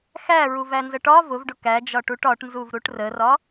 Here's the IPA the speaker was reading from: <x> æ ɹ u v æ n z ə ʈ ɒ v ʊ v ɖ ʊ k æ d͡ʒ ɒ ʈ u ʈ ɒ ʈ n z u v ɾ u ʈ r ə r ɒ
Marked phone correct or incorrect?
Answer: correct